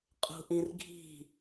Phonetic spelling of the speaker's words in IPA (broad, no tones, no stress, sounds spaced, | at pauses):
qʼ ṳ ʔ ĩ r ɡʱ i̤